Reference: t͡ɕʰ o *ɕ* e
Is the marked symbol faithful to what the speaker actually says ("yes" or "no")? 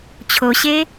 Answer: yes